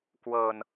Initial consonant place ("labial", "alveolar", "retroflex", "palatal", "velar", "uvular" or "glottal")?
velar